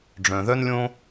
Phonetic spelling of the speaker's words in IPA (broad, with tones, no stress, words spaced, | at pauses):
ɖ͡ʐœ̃˨ðœ˦nlʲõ˦